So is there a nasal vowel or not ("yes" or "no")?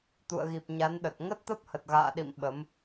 no